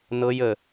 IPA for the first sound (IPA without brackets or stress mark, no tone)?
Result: n